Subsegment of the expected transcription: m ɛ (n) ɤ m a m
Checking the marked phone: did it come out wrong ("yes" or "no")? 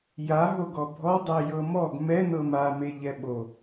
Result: no